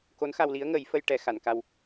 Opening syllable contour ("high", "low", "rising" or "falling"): rising